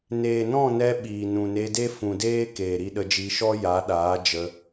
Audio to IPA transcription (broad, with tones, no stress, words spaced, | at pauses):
neː˨nɔ̃˦˨nɛ˧ ɓiː˨nũ˨ne˧ de˦fũ˨deː˦ keː˨ɾi˧ɗə˧d͡ʒi˧ ʃɔ˦ja˨˦ɗaː˨˦ d͡ʒə˧